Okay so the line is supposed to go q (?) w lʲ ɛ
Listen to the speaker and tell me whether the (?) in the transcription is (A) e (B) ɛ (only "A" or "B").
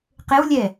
A